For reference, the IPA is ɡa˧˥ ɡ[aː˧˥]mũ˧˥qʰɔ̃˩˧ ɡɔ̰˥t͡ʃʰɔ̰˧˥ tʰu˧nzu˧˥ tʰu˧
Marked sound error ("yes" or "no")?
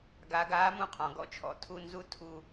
no